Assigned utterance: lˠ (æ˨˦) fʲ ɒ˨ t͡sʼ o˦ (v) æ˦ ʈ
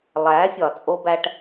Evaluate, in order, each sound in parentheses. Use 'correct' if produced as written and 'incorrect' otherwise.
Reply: correct, incorrect

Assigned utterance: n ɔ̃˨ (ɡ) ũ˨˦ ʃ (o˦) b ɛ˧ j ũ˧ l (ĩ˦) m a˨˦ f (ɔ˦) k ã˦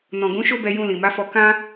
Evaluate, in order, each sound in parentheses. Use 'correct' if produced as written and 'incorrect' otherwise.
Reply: correct, correct, incorrect, incorrect

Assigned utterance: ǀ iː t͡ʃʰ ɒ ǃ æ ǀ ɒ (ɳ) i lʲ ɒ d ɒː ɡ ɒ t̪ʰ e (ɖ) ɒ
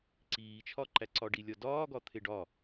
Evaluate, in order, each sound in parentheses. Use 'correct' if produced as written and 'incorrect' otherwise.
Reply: incorrect, correct

